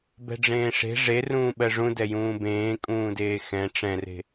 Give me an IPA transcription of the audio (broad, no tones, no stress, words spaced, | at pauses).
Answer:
bɛ̤ɖ͡ʐẽːʂe̤ ʐerũː ɓɜʐũ dɛjũːbẽː kʼũːdeːxɛ̃ ʈ͡ʂɛ̃re̤